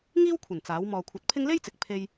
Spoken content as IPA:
ŋiː˥wkʷʰɐ˨˩n t͡saː˨˥w mɔː˨kʷʰɐ˨˥t̚pʰɪ˥ŋ le˥jt͡sɪ˨k̚ pʰe˥j

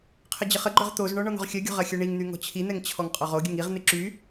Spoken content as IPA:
qʰəd͡ʑəχəɡ͡ǃœʁ t̪ozɳɔ ɳɔn̪ɔ̤ʁxʲœɡʲɔ̤ ʁɐxʲœɳiŋn̪y ŋɔ̤t͡ɕʰin̪ɛŋ t͡ɕʰɔŋqʼɔʁoɡʲəŋ iʁn̪ɪ ǁy

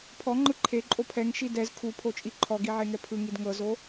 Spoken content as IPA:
pʰɔŋ͡ǃɯ ǃʰe ǃʼopʰɛŋ ʃidɛz kʰupʰot͡ʃʼi ǃʰɔɡiʕe ŋɛpʰɯŋid ŋɤzo

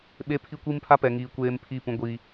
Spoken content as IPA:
ɓe˦pʰi˦kʷi˦mpʰa˦ pɛ˨ŋiː˨ kʷeː˦m pʰiː˦˨pũ˦ ɡʷiː˦

